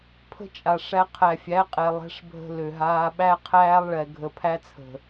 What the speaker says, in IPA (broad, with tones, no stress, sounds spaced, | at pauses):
pʰ ə̤˦ t͡ʃʼ a˨ ʂ æ˧ qʰ æ˨ fʲ æ˨˦ qʼ ɛ˨ lˠ ɛ̤˦ ʂ bʱ ə̤˦ l ø˨ ɦ aː˧ ɓ æ˦ qʰ æː˦ lˠ ɭ ɛ˨ ɡʱ ə˨ pʰ æ˧ t͡sʰ ə̤˨